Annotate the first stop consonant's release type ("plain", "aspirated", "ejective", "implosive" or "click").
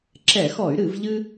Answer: click